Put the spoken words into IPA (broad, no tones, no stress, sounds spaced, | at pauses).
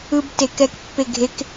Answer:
ɯ b t e k ɛ k pː e ɡʱ e k